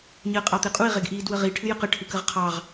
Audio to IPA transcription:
ɲəːqʼɑt̪eqʼui̯ ʁeɡʔiːdwəʁi ʈʰɨjəqə ʈʰɨkəʁqʰɑʁ

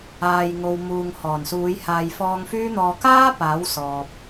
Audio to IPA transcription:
aː˨jŋo˨wmuː˨ŋ hɔː˨˩nsuː˨˧jhaː˨jfɔː˧ŋ fyː˥n̪ɔː˧ kaː˥ paː˨˥wsɔː˨p̚

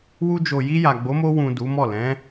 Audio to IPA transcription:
wu˧d͡ʒo˨ji˧ja˨ ɡ͡bo˨˦mo˧wũ˨ du˨˦mɔ˦˨ lɛ̃˨˦

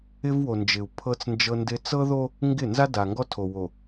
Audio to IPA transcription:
ɪ˦v wo˨nd͡ʒɪ˨u̯ pʰɤ˦t͡snd͡ʒɤ˦ndɪ˦ t͡sɤ˦ðo˦ | ŋɡɪ˦˨ nza˦da˨ŋɡɔ˦tʰo˨ wo˨

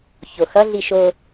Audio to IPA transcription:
çoxʌɮi ʃo

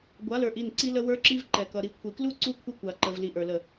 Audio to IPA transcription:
ɡʷa˨˦lə˞˨ʔi˦˨n ǀi˦lə˦ wə˞˦ǁi˦v ǃɛ˨kʌ˨ ɾi˨kʷʰi˨klu˦ ǀu˦kʷʰə˦kʷa˨ǃə˨v li˨ʔə˞˨lə˦˨

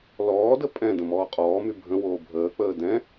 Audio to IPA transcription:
lɔːdə pʼɛ̃ də̃mɔːqʼɔːmy bʱə̃woː bʱəːk͡pəː dɛ̃

